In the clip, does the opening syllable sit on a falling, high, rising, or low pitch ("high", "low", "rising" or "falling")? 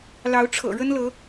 rising